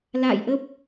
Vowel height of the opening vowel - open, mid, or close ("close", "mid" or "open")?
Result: open